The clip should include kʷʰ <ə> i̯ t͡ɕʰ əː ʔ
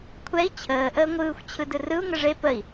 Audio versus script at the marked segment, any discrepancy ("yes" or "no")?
yes